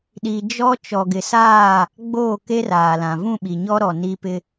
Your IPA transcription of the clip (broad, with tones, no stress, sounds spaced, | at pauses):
ɗ i˨ d͡ʒ ɔ˦ t͡ʃ ɔ˨ ɡ ɪ˨ s aː˦˨ | ɡ͡b oː˦˨ k e˦ r aː˨ l ã˨ v ũ˦˨ ɓ i˨ ɲ ɔ˦ ɾ ɔ˨ n i˦ p ɪ˦